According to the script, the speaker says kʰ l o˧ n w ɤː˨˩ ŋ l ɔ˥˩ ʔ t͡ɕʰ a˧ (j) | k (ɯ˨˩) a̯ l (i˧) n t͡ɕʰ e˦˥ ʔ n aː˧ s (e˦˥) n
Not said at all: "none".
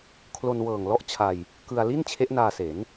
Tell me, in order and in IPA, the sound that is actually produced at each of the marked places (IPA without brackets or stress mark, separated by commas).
j, ɯ˧, i˥˩, e˩˦